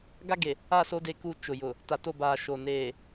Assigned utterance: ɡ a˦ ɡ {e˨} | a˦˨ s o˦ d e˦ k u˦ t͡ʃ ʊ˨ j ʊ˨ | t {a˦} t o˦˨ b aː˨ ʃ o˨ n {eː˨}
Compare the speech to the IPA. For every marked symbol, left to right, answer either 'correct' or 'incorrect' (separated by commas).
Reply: correct, incorrect, correct